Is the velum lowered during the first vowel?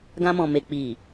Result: yes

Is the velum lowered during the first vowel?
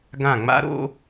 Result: yes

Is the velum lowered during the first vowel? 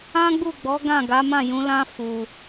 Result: yes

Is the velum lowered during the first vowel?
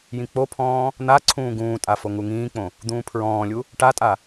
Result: yes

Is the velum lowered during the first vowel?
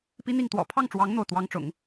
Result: no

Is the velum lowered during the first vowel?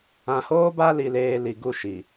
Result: yes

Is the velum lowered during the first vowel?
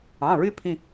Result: yes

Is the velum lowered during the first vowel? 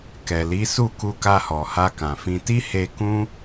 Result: no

